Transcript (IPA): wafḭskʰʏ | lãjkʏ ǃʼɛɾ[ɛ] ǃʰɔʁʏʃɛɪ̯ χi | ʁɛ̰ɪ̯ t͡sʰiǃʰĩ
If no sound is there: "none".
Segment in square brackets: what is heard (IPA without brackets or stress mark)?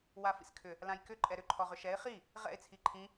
ʏ